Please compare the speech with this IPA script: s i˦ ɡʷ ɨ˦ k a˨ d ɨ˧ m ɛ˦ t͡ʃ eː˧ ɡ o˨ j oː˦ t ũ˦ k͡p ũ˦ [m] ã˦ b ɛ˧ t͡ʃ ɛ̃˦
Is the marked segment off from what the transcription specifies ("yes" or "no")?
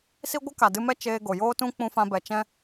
yes